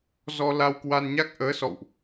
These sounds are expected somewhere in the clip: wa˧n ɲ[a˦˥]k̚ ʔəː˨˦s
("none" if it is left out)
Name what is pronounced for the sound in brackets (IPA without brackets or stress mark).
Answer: a˦˥